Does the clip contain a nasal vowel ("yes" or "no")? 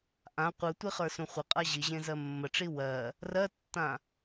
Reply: yes